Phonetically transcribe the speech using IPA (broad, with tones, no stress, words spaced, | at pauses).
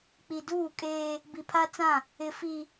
k͡pi˨duː˦˨kʼeː˦ | bi˨pʰa˦t͡sã˦˨ | ɪ˨fi˨